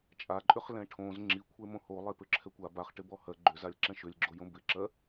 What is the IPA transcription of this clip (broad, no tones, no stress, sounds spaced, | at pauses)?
t͡ʃʼ a ǃʼ ʏ χ l ɛ̃ ʈʰ õ z ŋ͡ǁ i kʷʰ e m õ h o lˠ e p ʏ ǁʰ ɛ kʷ a b a χ ʈ ɪ b ɔ h ɜ ɡ͡ǃ ʏ z a lʲ ǁ ɛ̃ ʃ ʏ lʲ ɡ͡ǁ o j õ b ɪ ǁ ɜ